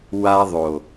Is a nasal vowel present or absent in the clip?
absent